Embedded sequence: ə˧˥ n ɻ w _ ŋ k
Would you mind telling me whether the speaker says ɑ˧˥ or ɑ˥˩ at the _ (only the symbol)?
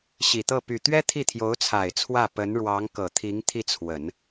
ɑ˧˥